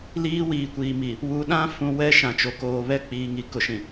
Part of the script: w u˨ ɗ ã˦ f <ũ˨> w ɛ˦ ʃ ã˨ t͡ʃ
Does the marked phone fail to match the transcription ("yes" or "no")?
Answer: no